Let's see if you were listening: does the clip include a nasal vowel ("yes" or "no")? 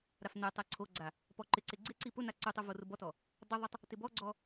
no